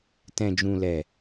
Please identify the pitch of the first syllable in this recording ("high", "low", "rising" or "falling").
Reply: low